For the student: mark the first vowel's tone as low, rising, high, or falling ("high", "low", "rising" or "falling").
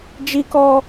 high